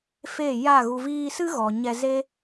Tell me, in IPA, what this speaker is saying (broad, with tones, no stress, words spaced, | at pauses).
fe˦˨ja˦˨ɣu˧ viː˧sɨ˦ɣɔ˨ ɲɛ˧ ze˦